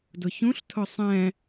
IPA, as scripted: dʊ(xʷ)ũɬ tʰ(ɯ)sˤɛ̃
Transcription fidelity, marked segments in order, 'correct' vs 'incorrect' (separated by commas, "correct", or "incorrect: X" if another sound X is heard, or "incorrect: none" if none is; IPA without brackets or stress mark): incorrect: ç, incorrect: ʊ